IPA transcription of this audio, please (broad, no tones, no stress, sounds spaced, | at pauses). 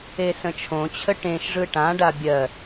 e s ə̃ t͡ʃʰ õ t͡ɕʰ ə ʈ ẽ ʃ ʐ ɯ ʈ ã ɖ a bʲ ɜ